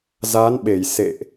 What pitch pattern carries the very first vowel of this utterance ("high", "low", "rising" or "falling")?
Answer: rising